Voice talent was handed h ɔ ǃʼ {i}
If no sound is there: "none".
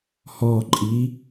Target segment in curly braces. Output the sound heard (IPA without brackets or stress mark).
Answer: i